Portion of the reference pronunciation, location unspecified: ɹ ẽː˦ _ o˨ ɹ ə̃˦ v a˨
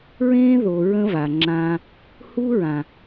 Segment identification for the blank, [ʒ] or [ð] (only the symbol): ð